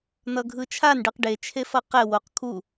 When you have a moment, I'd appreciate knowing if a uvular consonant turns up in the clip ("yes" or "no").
yes